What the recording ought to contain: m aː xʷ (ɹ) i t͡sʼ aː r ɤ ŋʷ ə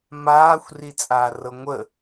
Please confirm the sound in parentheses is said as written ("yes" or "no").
no